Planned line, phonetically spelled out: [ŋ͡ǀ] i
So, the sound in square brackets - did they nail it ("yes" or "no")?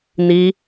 no